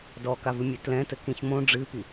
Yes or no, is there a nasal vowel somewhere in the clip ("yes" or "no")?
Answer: yes